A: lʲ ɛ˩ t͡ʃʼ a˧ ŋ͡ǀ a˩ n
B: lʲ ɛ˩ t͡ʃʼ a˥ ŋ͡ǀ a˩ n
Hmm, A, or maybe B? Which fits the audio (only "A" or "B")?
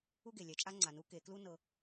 B